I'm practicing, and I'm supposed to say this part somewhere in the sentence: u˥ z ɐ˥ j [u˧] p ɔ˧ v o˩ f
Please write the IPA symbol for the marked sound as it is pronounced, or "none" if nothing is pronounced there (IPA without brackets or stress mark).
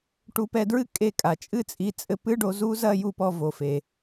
u˧